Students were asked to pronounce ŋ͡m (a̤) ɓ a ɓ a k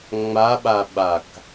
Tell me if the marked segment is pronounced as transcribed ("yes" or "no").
no